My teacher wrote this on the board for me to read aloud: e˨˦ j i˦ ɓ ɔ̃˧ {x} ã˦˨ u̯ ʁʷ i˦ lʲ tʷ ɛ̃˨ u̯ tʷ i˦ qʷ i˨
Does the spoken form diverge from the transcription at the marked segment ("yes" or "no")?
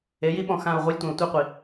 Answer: no